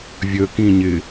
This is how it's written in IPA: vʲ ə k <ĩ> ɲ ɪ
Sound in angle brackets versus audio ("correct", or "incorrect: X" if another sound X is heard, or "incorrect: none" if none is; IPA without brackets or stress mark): correct